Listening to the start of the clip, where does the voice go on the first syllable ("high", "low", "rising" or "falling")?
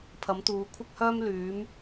rising